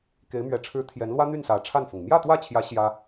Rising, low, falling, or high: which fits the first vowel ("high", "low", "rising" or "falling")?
rising